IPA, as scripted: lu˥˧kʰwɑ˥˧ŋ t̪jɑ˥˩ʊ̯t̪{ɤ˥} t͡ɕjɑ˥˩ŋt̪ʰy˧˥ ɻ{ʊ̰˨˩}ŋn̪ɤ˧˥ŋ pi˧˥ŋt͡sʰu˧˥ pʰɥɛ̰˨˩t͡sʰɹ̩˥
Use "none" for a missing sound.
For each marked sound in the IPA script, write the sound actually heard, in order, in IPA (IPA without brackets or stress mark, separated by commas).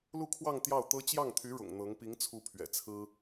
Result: ɤ˥, ʊ̰˨˩